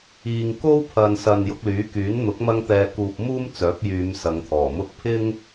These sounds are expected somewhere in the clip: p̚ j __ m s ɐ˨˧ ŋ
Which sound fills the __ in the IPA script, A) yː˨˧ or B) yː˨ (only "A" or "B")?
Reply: A